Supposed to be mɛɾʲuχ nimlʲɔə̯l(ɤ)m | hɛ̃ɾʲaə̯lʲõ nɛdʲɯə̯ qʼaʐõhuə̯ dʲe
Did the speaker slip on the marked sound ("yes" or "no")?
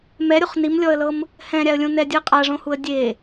no